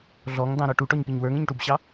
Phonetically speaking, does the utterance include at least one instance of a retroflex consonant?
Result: yes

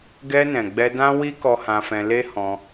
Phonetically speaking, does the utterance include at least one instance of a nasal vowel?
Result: yes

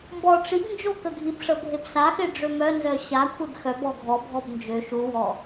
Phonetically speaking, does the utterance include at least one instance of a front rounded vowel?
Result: yes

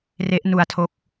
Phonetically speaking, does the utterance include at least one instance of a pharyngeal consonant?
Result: no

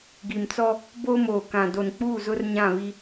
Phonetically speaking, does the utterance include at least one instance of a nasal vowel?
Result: yes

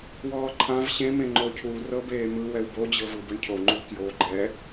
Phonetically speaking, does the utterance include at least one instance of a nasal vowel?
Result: yes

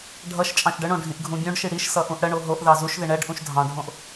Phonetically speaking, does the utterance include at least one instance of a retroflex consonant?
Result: yes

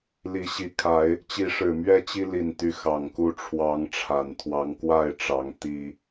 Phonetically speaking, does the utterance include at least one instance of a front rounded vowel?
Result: yes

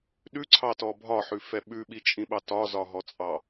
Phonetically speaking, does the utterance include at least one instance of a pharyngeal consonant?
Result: yes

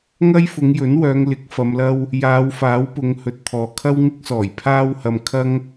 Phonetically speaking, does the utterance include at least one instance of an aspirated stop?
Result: yes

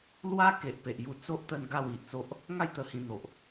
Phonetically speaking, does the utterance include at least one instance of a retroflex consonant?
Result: no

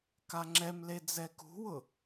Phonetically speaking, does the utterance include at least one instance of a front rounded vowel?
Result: no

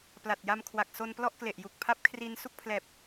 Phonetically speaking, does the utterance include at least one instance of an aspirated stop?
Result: yes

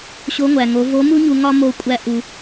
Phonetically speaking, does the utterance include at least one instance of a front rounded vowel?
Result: no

